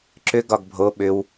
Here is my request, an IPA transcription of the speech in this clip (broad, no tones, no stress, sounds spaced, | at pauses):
ǁ ʏ ɡ ɒ ɡ bʱ o ɓ ʏ w